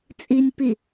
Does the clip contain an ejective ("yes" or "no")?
yes